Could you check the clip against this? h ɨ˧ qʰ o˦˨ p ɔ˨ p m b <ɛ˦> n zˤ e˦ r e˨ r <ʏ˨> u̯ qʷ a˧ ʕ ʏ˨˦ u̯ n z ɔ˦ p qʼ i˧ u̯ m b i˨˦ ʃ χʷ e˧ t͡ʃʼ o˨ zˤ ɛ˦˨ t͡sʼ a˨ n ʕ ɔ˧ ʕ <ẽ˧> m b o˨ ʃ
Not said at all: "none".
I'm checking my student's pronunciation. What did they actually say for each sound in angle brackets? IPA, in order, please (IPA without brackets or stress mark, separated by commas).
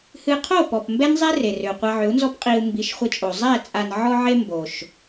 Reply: ɛ˦, ʏ˨, e˧